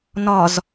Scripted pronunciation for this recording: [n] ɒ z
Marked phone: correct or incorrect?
correct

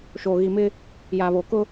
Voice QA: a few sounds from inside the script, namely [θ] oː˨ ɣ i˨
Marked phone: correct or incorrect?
incorrect: ʃ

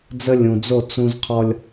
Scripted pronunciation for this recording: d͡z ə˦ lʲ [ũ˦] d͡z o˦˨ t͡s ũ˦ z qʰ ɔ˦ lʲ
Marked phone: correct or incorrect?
incorrect: ũ˨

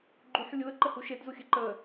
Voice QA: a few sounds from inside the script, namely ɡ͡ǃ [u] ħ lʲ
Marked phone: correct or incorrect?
correct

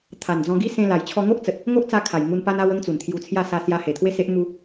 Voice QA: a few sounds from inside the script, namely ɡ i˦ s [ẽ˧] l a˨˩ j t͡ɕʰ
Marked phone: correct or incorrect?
correct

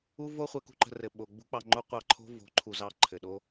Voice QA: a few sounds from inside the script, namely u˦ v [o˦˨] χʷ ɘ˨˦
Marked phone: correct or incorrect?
incorrect: o˦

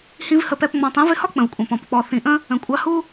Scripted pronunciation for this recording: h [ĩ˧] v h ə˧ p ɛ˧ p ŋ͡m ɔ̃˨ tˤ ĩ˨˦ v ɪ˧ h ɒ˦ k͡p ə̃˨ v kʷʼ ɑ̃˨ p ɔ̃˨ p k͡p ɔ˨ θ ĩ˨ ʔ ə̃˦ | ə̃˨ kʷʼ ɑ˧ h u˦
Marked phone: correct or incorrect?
incorrect: ĩ˦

